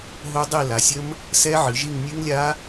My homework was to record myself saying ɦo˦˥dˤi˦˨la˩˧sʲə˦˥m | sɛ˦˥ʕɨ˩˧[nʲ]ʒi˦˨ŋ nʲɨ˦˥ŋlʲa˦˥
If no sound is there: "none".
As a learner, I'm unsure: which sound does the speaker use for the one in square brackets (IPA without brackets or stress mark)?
none